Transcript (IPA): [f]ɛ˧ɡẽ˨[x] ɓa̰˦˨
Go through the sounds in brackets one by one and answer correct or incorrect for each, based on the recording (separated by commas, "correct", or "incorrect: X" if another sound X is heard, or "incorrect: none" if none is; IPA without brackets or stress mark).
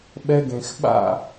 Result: incorrect: ɓ, correct